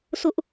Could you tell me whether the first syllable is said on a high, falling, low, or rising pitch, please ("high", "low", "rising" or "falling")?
high